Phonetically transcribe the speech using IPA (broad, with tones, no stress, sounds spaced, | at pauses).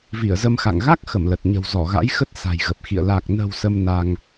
v i˧˩ ə̯ z ə˧ m x a̰˧˨ ŋ ɣ a˦˥ k̚ x ə˧˩ m l ə˨˩ t̚ ɲ ə̤˨˩ w z ɔ˧˩ ɣ a̰˧˥ j x ə˦˥ t̚ s a̤˨˩ j ɣ ə˨˩ p̚ x ḭ˧˨ ə̯ l a˨˩ k̚ n ə̤˨˩ w s ə˧ m n a˧ ŋ